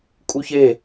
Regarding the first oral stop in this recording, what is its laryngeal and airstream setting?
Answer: ejective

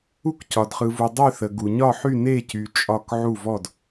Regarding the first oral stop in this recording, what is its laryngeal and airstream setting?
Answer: plain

